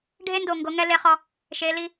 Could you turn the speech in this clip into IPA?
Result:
ɖʱ e˦ n d o˨ ŋ ɡ o˨˦ ŋ ɛ˦ l e˦ χ ɔ˦ | ʃ e˨˦ l i˦

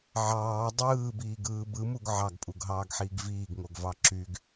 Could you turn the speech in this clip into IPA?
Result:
ʕ ɑː dˤ ɯː b iː ɡ ɯː b ɯ m u ɡ ʕ ɑ ɡ pʼ u ɡ ɦ ɑː ɡ ħ iː ɡ v iː ɡ ŋ o ɡ v ɑ ǁ y ɡ

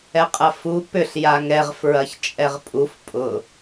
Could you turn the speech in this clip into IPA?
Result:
ɛ qʼ ɐ f u p ʏ ɬ j a ŋ ɛ ʁ f ɹ ɐ ç t͡ʃʼ ɛ ʁ pʼ u f pʼ ʊ

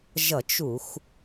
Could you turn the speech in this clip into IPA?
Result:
ʒ ʌ˧˩˧ t͡ʃ u˧˩˧ xʷ

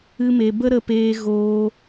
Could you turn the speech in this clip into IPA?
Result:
ɨ˧ m e˨ b ə˦ ɾ ə˧ p eː˧ ɣ oː˧

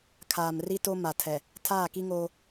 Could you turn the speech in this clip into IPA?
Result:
kʰ aː˨ m r i˦ t o˦ m a˨ tʰ ɛ˨ | tʰ aː˦˨ k i˦ ŋ oː˦

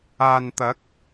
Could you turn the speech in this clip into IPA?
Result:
aː˨ n t̪ ɐ˨˥ k̚

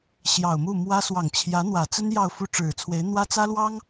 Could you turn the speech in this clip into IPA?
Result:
ɕ j ɑ˨˩ ʊ̯ m u˥˩ m w ä˥ s w ɑ˨˩ ŋ t͡ɕʰ j ä˧˥ n̪ w ä˨˩ t͡s ə˥ n j ɑ˥˧ ʊ̯ f u˥˩ ʈ͡ʂ ɻ̩˨˩ t͡sʰ w e˧˥ ɪ̯ n̪ w ä˥ t͡s ä˥ l w ɑ˥ ŋ

